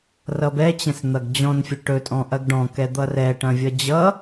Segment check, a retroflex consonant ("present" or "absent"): present